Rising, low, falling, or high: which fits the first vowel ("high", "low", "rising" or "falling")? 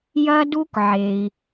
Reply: high